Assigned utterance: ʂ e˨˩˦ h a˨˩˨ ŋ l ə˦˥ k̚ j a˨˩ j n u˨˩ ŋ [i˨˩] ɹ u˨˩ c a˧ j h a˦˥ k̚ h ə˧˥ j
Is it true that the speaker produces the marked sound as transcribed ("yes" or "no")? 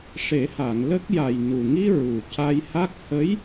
no